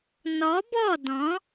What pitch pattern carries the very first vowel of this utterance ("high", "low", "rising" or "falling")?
rising